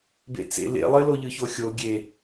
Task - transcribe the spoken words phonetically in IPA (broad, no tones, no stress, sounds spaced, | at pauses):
b ḛ t͡s ḛ l ḛ lˠ ɘ l o ʎ ɯ ç o xʲ o ɡʲ e